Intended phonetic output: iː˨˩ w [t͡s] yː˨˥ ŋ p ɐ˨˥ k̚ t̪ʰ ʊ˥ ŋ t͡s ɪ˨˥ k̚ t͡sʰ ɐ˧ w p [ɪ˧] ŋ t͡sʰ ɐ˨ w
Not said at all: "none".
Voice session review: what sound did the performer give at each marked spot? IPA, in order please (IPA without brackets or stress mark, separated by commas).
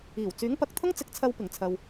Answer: t͡s, ɪ˨˩